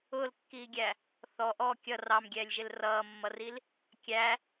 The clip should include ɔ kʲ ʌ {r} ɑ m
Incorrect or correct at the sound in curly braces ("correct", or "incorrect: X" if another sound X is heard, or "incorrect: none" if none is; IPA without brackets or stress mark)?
correct